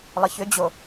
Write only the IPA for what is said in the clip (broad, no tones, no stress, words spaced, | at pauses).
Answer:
lˠəçʏd͡ʑo